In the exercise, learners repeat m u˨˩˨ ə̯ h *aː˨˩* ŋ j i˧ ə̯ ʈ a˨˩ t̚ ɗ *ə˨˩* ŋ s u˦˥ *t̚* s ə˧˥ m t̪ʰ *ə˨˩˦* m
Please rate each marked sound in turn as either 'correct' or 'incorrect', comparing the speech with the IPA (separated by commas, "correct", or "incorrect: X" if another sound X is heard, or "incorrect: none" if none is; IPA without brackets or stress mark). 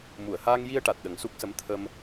incorrect: aː˧, correct, incorrect: k̚, incorrect: ə˧